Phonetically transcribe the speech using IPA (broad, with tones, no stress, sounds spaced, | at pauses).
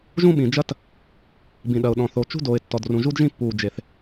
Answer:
ʒ ũ˥ ɓ ĩ˩ d͡ʒ ɐ˥ t | b ĩ˩ ɗ ɐ˩ ʊ̯ ɗ ɔ̃˩ θ o˩ t͡ʃ ṳ˥ d oː˩ ɪ̯ tː ɔ˩ d r ũ˩ ʒ u˥ d ʒ ĩ˥ pː uː˩ d͡ʒ e˩ θ